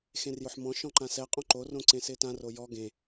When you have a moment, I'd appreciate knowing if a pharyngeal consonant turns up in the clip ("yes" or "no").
yes